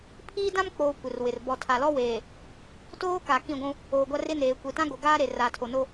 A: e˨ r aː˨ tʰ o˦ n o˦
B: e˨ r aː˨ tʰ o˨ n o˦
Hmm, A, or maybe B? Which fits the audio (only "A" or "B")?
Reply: B